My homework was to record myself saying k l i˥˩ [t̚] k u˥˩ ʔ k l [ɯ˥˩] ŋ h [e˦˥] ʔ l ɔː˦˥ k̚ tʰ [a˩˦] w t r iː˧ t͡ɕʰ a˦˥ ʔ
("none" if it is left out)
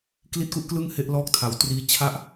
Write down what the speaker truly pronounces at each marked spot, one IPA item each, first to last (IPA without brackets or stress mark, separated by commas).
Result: t̚, ɯ˥˩, e˦˥, a˩˦